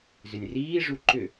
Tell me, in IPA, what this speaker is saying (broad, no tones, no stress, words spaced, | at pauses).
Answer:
zʏnʲriːʐu ǃʏ